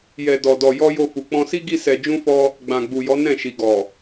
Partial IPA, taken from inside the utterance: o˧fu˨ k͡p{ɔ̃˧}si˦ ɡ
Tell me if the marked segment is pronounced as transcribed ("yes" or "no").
yes